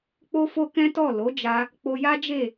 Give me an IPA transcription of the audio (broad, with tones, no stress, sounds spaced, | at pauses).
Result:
k͡p o˦ f o˦ k ɛ̃˦ t ɔ˦˨ l o˨˦ d͡ʒ a˧ | k͡p o˧ j a˦ d͡ʒ e˦˨